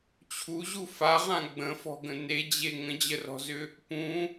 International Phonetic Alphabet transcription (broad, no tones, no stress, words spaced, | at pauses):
t͡ɕʰuʑu faʁã ɡ͡bə̃fɔ̤ɡə̃ ned͡ʑe ŋə̃d͡ʑərɔ̤zʏ | pũ